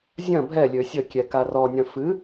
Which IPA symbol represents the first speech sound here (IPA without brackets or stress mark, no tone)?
zʲ